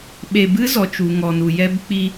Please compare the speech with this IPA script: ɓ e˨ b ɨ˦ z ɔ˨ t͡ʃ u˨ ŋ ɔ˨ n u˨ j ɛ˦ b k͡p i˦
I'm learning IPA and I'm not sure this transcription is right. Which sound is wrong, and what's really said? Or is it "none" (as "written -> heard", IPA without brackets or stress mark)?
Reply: none